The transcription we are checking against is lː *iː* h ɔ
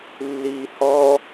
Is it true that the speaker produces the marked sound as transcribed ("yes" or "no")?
yes